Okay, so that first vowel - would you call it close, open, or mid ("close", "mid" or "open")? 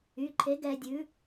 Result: close